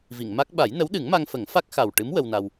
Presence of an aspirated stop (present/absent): absent